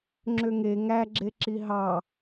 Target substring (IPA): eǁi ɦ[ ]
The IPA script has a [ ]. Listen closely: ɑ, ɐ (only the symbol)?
ɑ